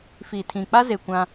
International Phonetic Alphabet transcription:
f iː˨ tʰ ĩ˨ k͡p a˦ z e˨ kʷ ã˦

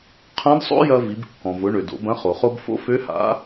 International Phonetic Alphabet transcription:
qʰ ɐ̃˧˥ d sˤ o̰˥ j ɐ˧ v i˩˧ b kː ɔ̃˩ v ʊ˩˧ ɳ ø˩ d o̰˩˧ b ɐ̃˧˥ χ o˩ χ o˧ b f o̰˧˥ f ø˧˥ h a̰˧˥

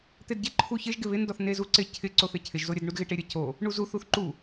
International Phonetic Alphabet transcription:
t̪ e d ɟ e ǃʰ u ç ɪ ʒ ɡ ɪ β ɪ n d ɔ θ n e z u ǀ ɪ cʰ ɪ ǀ o θ ɪ cʰ ɪ ʒ z o ɾʲ ə d ɳ u d ɣ ɪ ʈ e ɾʲ ə c o | ɳ u z u θ u θ ǃ u

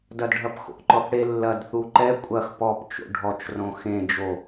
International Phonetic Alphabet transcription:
d ɐ d ɖʱ ɐ p x o̰ ǃ ɔ θ ɽ e lː ɐ d θ u ǃ ɛ kʷʼ ɐ x p ɔ p t͡ʃ o̰ ɖʱ ɔ t͡ʃ r õ x ẽ d͡ʒ o

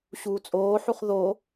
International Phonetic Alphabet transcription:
ɕ uː t͡sʼ oː ħ u χ ð o

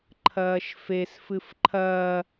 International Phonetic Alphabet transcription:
ǃʰ ɐː ʃ f e s f ɨ f ǃʰ ɐː

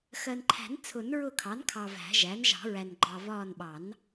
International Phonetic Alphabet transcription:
x ɜ˨ n ǃʰ æ̤˨˩˦ n t͡sʰ ʊ˨˩˦ n ɹ ʊ˦˨ kʰ ɑ˩˥ n kʰ ɑ˨ v æ̤˨˩˦ ʒ æ˩˥ n ʒ ɑ̤˨˩˦ ɹ æ˨ n ɡ͡ǃ ɑ˨ v ɒː˦˨ n ɓ ɑ˨˩˦ n

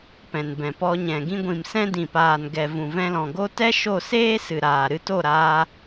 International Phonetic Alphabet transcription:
p ɛ̃˨ n b ɛ̃˨ p ɔ˧ ɲ ɛ̃˨ ɡ ĩ˧ ɡʷ ĩ˨ m s ɛ̃˦ d ĩ˨ p aː˨ n ɡ ɛ˨ v ũ˨ v ɛ̃˧ l ɔ̃˨ ɡ o˦ t ɛ˦ ʃ o˦˨ s eː˦ s ɨ˨ ɾ aː˨ ɾ ɨ˧ t o˦˨ ɾ aː˧

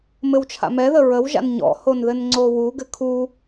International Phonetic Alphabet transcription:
m ɘ w t͡ʃʰ a̰ m ɛ ð ə ɹ ə w ʒ a̰ n ɲ ɔ̰ h o n ð ɘ n ŋ͡ǀ o w u ɡ ɘ kʰ u

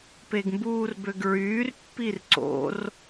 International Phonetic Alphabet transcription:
p e ɡ m b uː r b ø ɡ ɹ yː r pː i r ǀ o̰ r

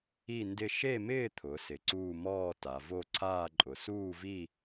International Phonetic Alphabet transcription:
i˥˧ n d ɪ˥˧ ʃ e˥˧ m ɪː˥˧ t̪ʰ ʊ˩˧ s ɪ˩˧ ǀ uː˥˧ m ɔː˥˧ t a˩˧ v o˥˧ ǀʰ aː˥˧ ǃʼ ʊ˩˧ s uː˥˧ v i˥˧

